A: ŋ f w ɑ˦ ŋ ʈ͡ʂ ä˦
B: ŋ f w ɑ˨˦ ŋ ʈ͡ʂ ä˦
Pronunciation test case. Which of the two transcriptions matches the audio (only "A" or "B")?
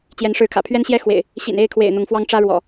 A